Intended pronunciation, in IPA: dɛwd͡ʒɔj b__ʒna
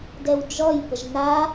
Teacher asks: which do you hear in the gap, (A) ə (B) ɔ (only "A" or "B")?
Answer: A